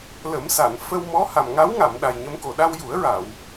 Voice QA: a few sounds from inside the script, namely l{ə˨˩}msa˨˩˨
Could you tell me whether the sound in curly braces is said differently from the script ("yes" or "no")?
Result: yes